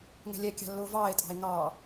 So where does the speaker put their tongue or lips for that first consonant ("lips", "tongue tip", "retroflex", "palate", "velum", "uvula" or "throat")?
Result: velum